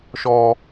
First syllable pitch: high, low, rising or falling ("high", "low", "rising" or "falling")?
low